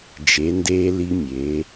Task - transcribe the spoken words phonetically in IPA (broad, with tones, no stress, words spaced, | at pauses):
d͡ʒe˩˧ndeː˧ li˧mʲe˩˧